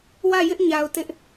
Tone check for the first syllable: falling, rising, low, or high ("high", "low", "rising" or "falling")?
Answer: falling